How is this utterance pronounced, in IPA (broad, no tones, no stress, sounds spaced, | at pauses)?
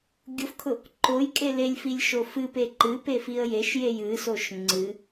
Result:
ɡʲ ʊ f kʰ ʊ | ǃ o j kʼ e l e lʲ f i lʲ ʃ o f ɨ p e ǃ ɨ p e f i ə̯ j e ʃ j e j ɨ s o ʃ ŋ͡ǀ ɨ